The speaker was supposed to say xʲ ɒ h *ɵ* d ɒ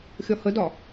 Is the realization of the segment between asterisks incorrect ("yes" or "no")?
yes